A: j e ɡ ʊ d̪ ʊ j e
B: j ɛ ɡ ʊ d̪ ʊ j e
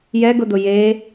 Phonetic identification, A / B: B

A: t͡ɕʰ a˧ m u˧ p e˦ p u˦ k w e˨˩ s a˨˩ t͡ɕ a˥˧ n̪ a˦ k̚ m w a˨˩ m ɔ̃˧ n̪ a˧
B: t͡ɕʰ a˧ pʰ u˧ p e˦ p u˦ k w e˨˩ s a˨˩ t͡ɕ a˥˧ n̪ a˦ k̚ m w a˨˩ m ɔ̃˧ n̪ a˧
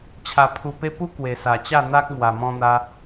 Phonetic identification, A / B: B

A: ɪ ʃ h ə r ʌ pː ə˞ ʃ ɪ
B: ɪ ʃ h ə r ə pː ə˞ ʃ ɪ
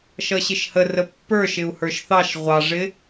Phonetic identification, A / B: B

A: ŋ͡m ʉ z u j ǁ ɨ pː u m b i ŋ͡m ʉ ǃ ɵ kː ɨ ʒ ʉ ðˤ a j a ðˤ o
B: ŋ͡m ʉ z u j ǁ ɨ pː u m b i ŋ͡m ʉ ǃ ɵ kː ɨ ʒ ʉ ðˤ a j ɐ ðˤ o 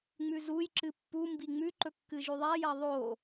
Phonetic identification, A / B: B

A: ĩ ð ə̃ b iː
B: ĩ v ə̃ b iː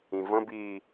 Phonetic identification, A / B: B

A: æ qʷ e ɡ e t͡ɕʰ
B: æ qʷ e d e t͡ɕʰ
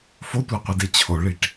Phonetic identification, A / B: B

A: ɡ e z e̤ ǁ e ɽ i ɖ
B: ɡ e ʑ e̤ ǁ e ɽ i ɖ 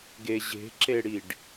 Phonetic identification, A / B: B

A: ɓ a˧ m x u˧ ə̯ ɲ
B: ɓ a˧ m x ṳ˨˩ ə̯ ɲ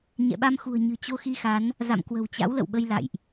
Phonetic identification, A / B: B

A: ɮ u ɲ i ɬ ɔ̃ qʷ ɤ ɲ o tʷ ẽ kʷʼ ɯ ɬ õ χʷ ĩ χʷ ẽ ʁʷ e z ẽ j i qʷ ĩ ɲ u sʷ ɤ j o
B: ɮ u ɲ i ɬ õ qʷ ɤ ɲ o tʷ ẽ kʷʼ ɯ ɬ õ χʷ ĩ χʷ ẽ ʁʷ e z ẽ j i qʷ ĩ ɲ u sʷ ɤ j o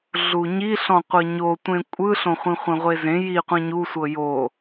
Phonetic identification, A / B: A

